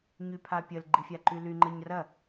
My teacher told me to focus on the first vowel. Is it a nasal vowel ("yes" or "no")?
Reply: no